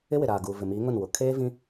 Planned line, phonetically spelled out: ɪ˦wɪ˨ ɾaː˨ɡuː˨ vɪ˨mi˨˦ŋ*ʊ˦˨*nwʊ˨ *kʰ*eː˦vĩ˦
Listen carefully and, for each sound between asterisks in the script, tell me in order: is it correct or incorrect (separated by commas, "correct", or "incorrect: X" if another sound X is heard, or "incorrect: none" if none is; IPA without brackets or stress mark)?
correct, correct